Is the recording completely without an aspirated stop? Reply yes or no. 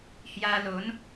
yes